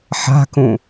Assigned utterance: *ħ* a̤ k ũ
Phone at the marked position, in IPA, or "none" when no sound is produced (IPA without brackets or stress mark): ħ